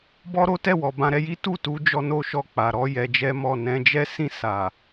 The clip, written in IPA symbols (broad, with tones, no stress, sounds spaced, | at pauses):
b ɔ˦ ɾ o˦ t ɛ˦˨ w ɔ˨ b ã˧ ɾ ɛ˧ j i˦ t u˦˨ t u˨˦ d͡ʒ ɔ˧ n o˦ ʃ ɔ˦˨ k͡p a˨ ɾ ɔ˨˦ j ɛ˧ d͡ʒ ɛ˦ m ɔ˦˨ n ɛ̃˧ d͡ʒ ɛ˦ s ĩ˦˨ s a˨